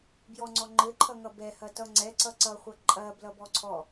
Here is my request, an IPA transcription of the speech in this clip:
b j ɔ ŋ͡ǀ ɔ ŋ͡ǃ ɘ ǃʰ ʌ ŋ ʌ b ɛ h ɐ t ʌ ŋ͡ǀ ɛ ǀ ʌ ǀ ʌ χʷ ʌ ǃʼ ɐ b l ʌ b ɔ ǀʰ ɔ

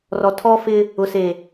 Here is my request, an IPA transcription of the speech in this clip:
r ɔ˨ tʰ ɔ˦ f ɪ˦ | ʊ˨ s e˨

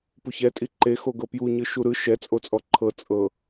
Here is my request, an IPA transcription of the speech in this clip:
p u ç ɛ tʼ i ǃ e x o ɡ ɤ p j u ɲ ɯ ʃ u ɾ ɯ ʃ ɛ t͡sʼ o t͡sʼ ɔ ǃʰ ɤ t͡sʼ ɤ

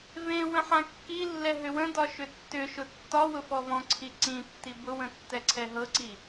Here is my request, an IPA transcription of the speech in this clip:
v ẽ w ə̃ ħ ã kː i lː ɛ ɦ ʏ w ə̃ d ɒ ʃ ʏ tː ʏ ʃ ʊ tː ɒ w ʊ f ɔ v ɔ̃ ǀʰ i ǀ ĩ tː i b ʊ w ə̃ tː ɛ ǀʰ ɛ ɦ ɤ ǀ i

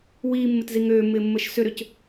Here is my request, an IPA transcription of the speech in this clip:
w iː mː ɪ t z i ŋ øː mː ɪː mː əː ʃ s ʏ ɾ ø c

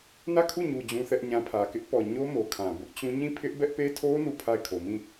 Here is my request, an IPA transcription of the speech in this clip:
n ä˦˨ kʰ u˦˨ ɲ u˨ d͡ʑ ũ˦ θ ɛ˦ ʔ ɲ ã˦ pʰ ä˨ k ɪ˦ ʔ p ɔ˨ ɲ o˦ m o˨ kʰ ã˨ b ʊ˦ ʔ t͡ɕ ũ˦ ɲ ĩ˦˨ pʰ ɪ˦ ʔ b ɛ˦ ʔ p e˦ tʰ o˦ n u˦˨ pʰ a˦˨ ɪ̯ kʰ o˨ m ĩ˦˨

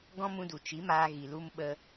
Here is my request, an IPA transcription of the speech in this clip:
ɡ ɔ̃˦ m ũ˧ d u˨ t͡ʃ i˨˦ m aː˧ ɣ i˨ l u˧ m ɓ ə˧

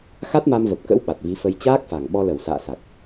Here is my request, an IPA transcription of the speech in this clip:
x a˦˥ t̚ m a˧ m v ə˨˩ p̚ k ə̰˧˥ w ɓ a˨˩ t̚ v i˨˦ f ə˧ j t͡ɕ aː˦˥ k̚ f a˨˩ ŋ ɓ ɔ˧ l ə˧˩ w s a̰ː˧˨ s a˨˩ k̚

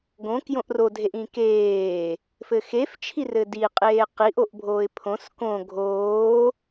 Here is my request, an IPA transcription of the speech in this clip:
ɡ õ k j õ ʔ r o dʱ e ʔ ĩ k eː | f ɘ x e f t͡ʃʰ i r ɘ d i qʼ eː q i ʔ o ʔ bʱ oː ɪ̯ pʰ õ s k õ ɡʱ oː

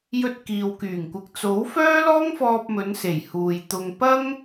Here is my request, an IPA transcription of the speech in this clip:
j ɵ˧ t̚ k iː˨ w k yː˨˩ ŋ kʷ ɪ˨ k̚ t͡s o˨˥ w f œː˥ l ɔː˥ ŋ f ɔː˧ p̚ m ɵ˨˧ n s e˨˩ j h uː˨ j t̪ ʊ˧ ŋ p ɐ˥ ŋ

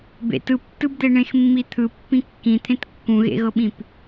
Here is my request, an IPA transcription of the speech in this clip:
b ḛ t ɯ p tː ɯ b d̪ e ɳ ẽ x mː i t̪ʰ ɯ pː ĩ kː ĩ t̪ʰ ẽ t kː ũ ɣ ḛ ɣ ɤ ɓ ĩ p

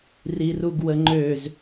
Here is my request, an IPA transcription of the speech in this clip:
r i r u ɡ w ə ŋ͡ǃ ø z

